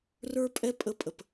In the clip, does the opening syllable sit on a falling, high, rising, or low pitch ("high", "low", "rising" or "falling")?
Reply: high